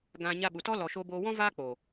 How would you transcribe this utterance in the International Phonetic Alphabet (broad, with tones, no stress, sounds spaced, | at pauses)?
ɡ ã˧ ɲ a˧ ɓ u˨ t ɔ˦ l ɔ˧ ʃ oː˦ b oː˦ w ɔ̃˦ v aː˦ k͡p oː˨